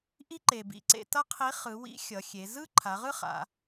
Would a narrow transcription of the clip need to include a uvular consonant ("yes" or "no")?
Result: yes